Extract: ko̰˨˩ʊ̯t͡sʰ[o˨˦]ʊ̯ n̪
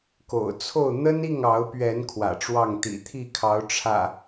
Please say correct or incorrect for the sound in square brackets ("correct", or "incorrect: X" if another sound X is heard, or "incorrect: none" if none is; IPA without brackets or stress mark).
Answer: incorrect: o˥˨